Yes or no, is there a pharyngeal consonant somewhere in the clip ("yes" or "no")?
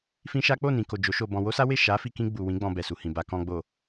no